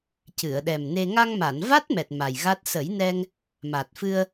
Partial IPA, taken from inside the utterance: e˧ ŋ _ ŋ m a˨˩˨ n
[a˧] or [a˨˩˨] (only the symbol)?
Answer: a˧